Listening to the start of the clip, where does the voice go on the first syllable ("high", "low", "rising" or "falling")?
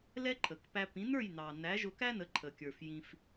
high